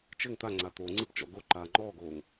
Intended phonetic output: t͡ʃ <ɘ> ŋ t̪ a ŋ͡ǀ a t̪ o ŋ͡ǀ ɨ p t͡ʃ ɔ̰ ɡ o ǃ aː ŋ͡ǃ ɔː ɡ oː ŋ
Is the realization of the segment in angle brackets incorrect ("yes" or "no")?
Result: no